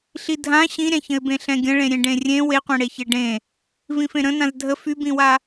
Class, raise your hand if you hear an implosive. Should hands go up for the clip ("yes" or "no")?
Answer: no